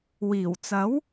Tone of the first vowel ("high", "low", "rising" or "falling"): low